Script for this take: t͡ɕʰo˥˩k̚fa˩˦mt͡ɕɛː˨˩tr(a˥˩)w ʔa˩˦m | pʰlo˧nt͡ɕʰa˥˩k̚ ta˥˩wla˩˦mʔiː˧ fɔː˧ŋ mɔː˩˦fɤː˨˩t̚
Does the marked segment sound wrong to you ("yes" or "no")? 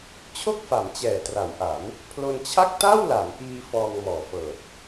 yes